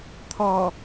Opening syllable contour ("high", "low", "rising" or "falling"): low